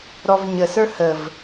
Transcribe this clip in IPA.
ɾ ɔ v ɲ ə s ə˞ h ə v

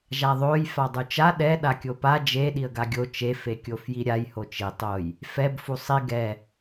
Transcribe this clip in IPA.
ʒ a ðˤ o j f a dˤ u t͡ʃ a ɗ ɛ ɗ a kʲ o p a d͡ʒ e ɗ i ə̯ ɡ a ɡʲ o t͡ʃ e f e kʲ o f j i ɾʲ a j h o t͡ʃ i tˤ o j | f ɛ b f u sˤ i ɡ ɛ

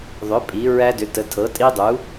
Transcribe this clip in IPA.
ðˤ ʏ˩˥ pʼ i˩˥ ɹ æ˦˥ d ʏ˩˥ t ə˩˥ tʰ ɤ˩˥ tʼ i˦˥ dˤ u˩˥

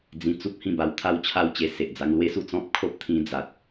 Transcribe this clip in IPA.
d͡z ĩ˧ t͡s u˦ p̚ h ĩ˥˧ b a˧ w t̪ʰ a˥˧ w t͡ɕʰ a˥˧ w t͡ɕ e˧ s e˨ ʔ d͡z a˧ ŋ l w e˦ s u˥˧ t͡s ɔ̃˦ p̚ kʰ o˦ p̚ t̪ʰ ĩ˧ d͡z a˨ t̚

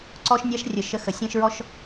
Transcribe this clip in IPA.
ǀ ɔ˧ ʃ nʲ a˧ ʃ rʲ ə˨ ʃ ə˨˦ x ə˨ sʲ ɛ̃˦ ʃ ɹ ɔ˦ ʃ

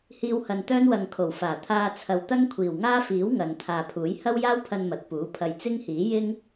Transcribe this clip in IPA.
h iː˧ w h ɐ˨ n t̪ œː˥ n w ɐ˨ ŋ kʰ o˨˩ w f aː˨˩ t̪ʰ aː˧ t͡sʰ ɐ˨ w t̪ ɐ˥ ŋ kʷʰ iː˨˩ w ŋ aː˥ f iː˨˥ w ŋ ɐ˨ n t̪ʰ aː˨ pʰ uː˨˥ j h ɐ˥ w j aː˥ w pʰ ɐ˧ n m ɐ˨ t̚ p uː˨˥ pʰ ɐ˧ j t͡s ɪ˥ ŋ h iː˨˥ j ɪ˥ ŋ

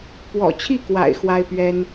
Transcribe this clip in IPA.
p w ɔ̰˨˩ t͡ɕʰ i˥˩ k w a̰˨˩ ɪ̯ x w a˥ ɪ̯ p ɥ ɛ˥ n

